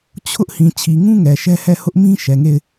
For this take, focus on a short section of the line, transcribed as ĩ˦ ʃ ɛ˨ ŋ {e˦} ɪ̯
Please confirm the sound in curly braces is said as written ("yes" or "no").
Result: no